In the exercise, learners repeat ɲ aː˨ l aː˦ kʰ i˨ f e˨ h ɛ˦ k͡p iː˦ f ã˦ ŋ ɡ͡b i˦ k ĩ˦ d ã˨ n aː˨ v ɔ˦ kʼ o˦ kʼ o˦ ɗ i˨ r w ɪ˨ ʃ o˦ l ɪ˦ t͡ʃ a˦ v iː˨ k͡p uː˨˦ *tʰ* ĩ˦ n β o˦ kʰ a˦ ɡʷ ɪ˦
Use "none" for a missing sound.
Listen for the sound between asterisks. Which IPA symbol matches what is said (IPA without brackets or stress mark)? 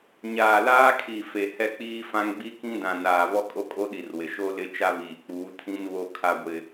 tʰ